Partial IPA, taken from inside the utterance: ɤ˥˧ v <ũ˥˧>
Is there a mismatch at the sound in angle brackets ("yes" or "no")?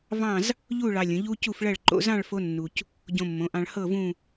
no